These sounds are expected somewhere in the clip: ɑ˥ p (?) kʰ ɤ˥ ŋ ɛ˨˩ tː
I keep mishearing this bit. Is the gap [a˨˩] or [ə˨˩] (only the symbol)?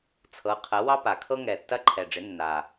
a˨˩